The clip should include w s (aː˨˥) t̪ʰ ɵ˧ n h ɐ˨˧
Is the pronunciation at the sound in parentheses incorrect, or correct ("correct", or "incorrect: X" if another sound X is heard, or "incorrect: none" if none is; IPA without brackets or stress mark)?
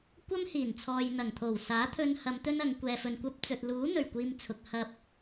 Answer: correct